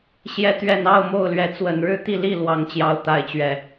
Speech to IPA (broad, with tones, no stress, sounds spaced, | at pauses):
ɕ j ɛ˨˦ t̪ ɥ ɛ˨˩ n ɑ˥˨ ʊ̯ m o˥˨ ʊ̯ l ɥ ɛ˨˦ t͡s w ə˨˩ n ɻ ɻ̩˥˨ t̪ i˥˨ l i˥˨ l w ɑ˨˦ ŋ t͡ɕ j ɑ˨˦ ʊ̯ t̪ a˨˦ ɪ̯ t͡ɕ ɥ ɛ˨˩